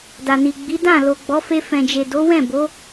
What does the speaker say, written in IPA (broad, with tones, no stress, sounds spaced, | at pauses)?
d a˨ n i˨ ɡ͡b i˨˦ d ã˦˨ l o˨ ɡ͡b ɔ˨˦ f e˧ f ɛ̃˨ d͡ʒ e˨ d o˨˦ w ɛ̃˦˨ b o˨˦